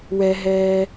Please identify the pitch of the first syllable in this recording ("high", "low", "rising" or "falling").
low